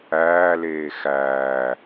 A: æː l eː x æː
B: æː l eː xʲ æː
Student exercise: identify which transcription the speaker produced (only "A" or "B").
A